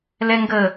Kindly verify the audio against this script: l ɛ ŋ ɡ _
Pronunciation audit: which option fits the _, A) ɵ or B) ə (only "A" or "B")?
B